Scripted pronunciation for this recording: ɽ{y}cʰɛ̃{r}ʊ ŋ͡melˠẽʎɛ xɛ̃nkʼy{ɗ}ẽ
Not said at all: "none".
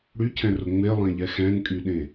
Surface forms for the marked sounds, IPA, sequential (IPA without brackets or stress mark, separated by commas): y, r, ɗ